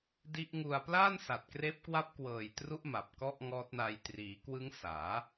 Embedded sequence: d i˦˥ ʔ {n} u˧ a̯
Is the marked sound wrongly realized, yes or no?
yes